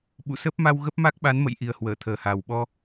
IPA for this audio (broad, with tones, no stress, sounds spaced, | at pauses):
ɓ ṵ˧˨ s ə˦˥ p̚ m a˧ w ɣ ə˦˥ p̚ m a˦˥ k̚ ɓ a˨˦ n m ə̰˧˨ j ʔ i˨˩ ə̯ h w əː˧˩ t̪ʰ əː˨˩ h a˨˩ w ɓ ɔ˧